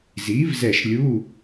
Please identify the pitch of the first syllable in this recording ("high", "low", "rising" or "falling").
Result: rising